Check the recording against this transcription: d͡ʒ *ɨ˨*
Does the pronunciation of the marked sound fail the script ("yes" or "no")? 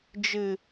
no